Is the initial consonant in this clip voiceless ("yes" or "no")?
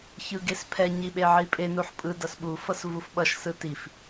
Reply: yes